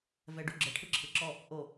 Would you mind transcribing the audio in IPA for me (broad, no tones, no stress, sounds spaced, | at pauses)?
v ɛ ɖ u ɡ͡ǁ ɤ ʈʰ ɯ ǁʰ ɯ ǁ ɔ | ʔ o